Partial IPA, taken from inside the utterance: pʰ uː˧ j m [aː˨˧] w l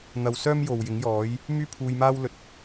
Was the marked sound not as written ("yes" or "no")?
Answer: yes